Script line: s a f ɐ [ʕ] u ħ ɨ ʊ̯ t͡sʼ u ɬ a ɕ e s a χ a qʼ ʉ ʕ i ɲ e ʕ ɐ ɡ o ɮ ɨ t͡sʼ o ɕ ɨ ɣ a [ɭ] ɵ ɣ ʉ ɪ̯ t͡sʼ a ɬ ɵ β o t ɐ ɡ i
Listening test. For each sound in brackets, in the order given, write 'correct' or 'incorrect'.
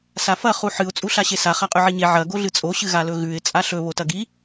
incorrect, incorrect

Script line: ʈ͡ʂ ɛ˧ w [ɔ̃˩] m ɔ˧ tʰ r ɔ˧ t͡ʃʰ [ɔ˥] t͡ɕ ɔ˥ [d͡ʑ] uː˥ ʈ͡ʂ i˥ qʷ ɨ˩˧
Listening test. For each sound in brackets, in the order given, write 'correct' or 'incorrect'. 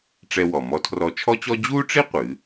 incorrect, correct, correct

